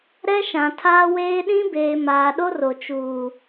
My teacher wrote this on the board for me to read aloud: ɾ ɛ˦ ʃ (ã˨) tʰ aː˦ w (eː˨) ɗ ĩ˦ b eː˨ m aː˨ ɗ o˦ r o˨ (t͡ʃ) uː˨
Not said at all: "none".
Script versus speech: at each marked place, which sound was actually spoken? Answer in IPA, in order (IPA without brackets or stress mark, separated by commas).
ã˨, eː˦, t͡ʃ